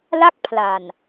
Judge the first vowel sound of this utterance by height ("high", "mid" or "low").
low